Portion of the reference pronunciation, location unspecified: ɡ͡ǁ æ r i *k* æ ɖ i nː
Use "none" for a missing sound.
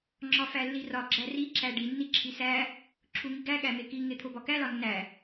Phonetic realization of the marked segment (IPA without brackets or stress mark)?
ǁ